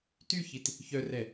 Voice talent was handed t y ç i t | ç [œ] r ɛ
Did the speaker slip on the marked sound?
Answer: no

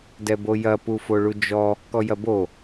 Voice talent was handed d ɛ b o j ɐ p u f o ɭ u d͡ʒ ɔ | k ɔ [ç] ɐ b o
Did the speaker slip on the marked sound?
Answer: yes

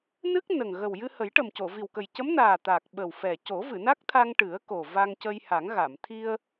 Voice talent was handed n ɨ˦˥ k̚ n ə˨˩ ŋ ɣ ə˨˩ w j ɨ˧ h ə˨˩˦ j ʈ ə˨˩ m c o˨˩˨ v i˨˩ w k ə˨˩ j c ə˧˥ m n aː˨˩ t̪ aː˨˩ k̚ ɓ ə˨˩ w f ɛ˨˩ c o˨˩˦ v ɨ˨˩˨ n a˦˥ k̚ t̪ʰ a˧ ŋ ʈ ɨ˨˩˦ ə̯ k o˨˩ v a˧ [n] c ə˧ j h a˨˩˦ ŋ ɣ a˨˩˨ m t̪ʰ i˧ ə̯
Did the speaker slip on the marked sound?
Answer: yes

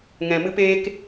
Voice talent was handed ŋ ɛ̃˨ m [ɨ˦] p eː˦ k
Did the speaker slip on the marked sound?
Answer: no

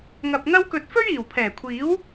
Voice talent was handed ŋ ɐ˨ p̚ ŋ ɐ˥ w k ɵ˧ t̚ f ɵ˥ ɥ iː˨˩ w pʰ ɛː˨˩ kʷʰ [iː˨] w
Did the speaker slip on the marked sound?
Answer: yes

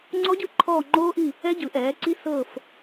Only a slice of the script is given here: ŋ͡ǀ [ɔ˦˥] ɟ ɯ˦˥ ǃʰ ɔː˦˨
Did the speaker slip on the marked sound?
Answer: no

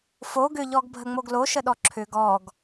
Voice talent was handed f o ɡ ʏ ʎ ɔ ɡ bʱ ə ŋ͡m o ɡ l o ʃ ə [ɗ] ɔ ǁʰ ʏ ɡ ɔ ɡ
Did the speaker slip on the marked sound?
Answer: no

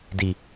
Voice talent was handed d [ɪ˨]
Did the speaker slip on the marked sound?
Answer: yes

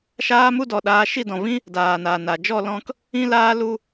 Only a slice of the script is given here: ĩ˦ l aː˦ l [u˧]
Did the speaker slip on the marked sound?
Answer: no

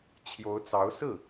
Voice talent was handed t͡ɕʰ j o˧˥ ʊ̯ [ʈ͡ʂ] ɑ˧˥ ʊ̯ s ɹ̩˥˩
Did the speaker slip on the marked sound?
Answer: yes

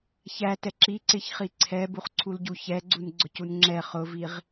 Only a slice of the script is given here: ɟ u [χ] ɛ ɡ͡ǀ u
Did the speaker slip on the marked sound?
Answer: yes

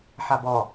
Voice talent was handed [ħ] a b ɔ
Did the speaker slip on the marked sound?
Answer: no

